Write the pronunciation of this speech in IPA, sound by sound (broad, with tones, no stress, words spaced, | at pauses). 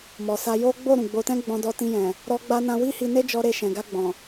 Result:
mɔ˨sa˧ jo˦ɡ͡bo˦˨ ɾũ˨ɡ͡bo˧tɛ̃˦ ɡ͡bɔ̃˧dɔ˧tĩ˧jɛ̃˨ | ɾɔ˧ɡ͡ba˧nã˧ wi˦hi˧ne˦d͡ʒɔ˧ ɾe˧ʃɛ̃˨ɡa˧ɡ͡bɔ̃˨